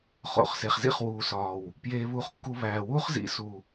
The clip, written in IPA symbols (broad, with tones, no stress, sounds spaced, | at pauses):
χ o̰˨ χ s e˨ χ z ḭ˦ χ w uː˨ s ɒː˨ w | p j eː˧ β uː˧ χ kː u˧ β æː˨ w uː˦ χ z ḭ˨˦ s u˨